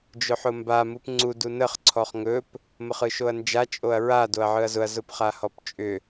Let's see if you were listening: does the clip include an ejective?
yes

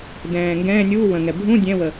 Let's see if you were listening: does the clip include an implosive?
no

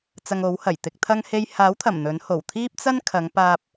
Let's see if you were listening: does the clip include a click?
no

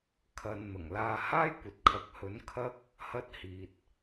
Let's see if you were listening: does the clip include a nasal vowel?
no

